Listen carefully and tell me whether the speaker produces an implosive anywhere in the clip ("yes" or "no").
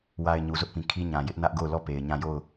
no